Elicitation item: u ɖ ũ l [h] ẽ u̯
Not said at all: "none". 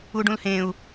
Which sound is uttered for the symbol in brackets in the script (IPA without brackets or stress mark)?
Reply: h